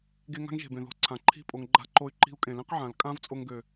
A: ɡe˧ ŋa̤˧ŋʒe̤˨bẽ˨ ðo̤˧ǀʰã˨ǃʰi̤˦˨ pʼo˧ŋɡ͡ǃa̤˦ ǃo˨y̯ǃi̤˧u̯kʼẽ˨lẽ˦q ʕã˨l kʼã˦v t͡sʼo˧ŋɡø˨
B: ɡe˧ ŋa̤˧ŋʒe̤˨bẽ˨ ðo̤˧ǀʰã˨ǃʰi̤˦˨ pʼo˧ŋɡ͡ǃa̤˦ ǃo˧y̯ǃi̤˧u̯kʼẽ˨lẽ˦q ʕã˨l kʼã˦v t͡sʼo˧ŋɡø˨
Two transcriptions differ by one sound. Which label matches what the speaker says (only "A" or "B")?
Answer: B